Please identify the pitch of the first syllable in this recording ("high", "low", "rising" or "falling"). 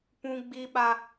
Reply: high